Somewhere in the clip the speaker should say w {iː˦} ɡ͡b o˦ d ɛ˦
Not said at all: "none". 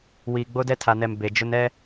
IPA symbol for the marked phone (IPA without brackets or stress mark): iː˨